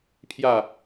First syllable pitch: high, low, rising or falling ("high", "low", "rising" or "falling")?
falling